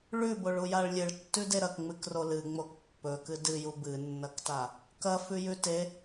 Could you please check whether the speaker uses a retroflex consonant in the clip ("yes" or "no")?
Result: yes